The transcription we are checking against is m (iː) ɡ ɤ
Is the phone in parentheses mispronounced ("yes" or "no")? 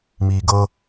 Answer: no